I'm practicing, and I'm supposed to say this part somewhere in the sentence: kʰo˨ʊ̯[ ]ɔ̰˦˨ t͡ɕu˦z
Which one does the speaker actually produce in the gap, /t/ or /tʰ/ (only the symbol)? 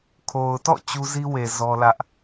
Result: t